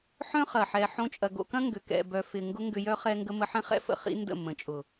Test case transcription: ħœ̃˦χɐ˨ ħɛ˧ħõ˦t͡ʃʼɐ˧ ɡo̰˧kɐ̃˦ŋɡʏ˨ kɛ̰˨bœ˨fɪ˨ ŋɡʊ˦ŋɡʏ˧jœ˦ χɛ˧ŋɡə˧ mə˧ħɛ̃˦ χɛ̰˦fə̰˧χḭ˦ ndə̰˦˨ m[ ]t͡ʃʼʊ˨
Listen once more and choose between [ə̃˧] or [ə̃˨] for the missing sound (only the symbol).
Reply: ə̃˨